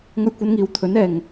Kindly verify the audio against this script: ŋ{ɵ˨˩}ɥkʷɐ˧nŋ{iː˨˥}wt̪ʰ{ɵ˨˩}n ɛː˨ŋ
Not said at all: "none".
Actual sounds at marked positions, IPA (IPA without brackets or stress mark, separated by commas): ɵ˧, iː˨, ɵ˨˥